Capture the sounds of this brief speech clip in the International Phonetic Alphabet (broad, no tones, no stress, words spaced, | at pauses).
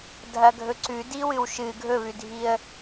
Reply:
dʱɐɡʱɵǀʉ diwɨwʃɨ ɡʱɵβʉdʱiə̯